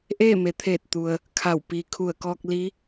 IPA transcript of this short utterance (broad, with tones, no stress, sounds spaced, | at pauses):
ʔ eː˥˨ m e˩˧ t̪ʰ eː˧˩ t̚ t̪ u˩ ə̯ | kʰ a˧˩ w p iː˩ kʰ u˧˩ ə̯ k ɔː˧ k̚ l i˧˥